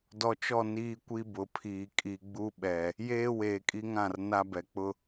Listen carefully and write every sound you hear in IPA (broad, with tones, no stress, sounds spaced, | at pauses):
d ɔ˨ t͡ʃ ɔ˦˨ n iː˦ kʷ i˦ b ʊ˨ pʰ iː˨ kʼ i˨ ɡ͡b u˦ ɓ ɛ˨ | j eː˦ w eː˨ kʼ i˦ ŋ ã˦˨ r n a˦ b ɛ˨ k͡p ʊ˦